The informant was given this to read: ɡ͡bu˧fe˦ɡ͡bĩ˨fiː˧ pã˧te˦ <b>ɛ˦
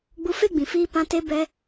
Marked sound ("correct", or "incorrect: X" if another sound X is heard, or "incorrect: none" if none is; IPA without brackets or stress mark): correct